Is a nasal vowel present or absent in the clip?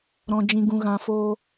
present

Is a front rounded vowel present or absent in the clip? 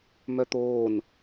present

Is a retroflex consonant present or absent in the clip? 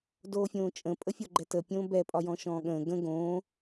absent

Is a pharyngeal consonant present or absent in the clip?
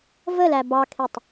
absent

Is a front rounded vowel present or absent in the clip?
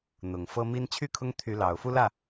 present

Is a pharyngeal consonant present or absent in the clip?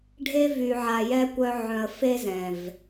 present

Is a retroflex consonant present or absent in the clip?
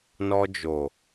absent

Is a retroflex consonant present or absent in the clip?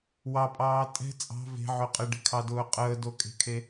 present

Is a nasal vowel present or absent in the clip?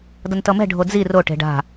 absent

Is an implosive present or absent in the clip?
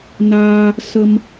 absent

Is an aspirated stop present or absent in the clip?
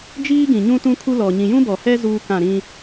present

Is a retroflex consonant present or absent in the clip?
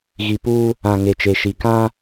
absent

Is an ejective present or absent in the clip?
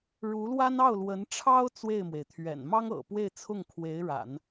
absent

